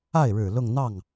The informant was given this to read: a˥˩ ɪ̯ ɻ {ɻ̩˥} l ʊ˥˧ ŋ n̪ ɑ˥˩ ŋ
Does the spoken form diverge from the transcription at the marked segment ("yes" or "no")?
yes